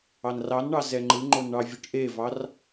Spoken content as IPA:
ɑnrɑnɳɑ zɛŋ͡ǃɯŋ͡ǃon ɳɑvʲɯʈʔevɑr

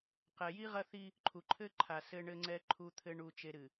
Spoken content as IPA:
qɛ˨ji˦ ʁɐ˦θi˦ | ǃʰu˨ǃʰɘ˦ǃʰa˨ sɘ˨ɳɘ˨ŋ͡ǀɛ˨ ǃʰu˨t̪ʰɘ˨ ɳu˨t͡ʃe˨ɾɨ˨

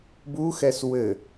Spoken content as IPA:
buxɛs wɘ

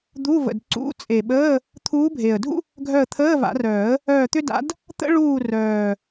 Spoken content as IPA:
d̪u˧˥˧və̰˨˩dǀṵ˧˥˧ t͡sʼe˨˩ɓəː˧˥˧ | t̪ʰuː˧˥bʱe˨˩ə̯dʱṵ˥ | ɡʱœ˦˨ə̯t̪ʰəː˧˥˧va̰˨˩˦rœː˨˩˦ə̯ | œː˦˨ t̪ʏ˥da̰˧˥d | t̪ə̰˥ɭuː˦˨ rœː˨˩

